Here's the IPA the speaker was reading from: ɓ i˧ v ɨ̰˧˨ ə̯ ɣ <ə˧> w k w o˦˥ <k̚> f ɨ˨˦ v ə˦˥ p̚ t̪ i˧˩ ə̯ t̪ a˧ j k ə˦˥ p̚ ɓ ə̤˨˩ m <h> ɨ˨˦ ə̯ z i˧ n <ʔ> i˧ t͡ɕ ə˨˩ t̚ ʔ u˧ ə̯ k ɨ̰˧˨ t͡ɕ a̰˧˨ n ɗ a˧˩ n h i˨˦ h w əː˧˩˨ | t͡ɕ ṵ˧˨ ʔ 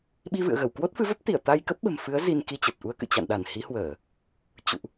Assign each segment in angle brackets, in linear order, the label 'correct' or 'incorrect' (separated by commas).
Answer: incorrect, incorrect, incorrect, incorrect